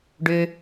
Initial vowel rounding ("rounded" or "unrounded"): rounded